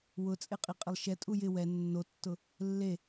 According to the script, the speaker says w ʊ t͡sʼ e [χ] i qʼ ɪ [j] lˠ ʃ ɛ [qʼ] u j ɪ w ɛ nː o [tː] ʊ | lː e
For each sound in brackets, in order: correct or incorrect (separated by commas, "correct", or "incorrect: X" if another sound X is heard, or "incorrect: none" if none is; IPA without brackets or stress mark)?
incorrect: qʼ, incorrect: none, incorrect: tʼ, correct